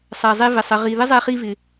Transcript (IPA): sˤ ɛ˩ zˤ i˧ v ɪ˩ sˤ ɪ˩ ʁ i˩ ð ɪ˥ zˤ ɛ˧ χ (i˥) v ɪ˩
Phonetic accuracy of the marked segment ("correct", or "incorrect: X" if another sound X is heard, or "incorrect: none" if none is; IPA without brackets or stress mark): incorrect: i˧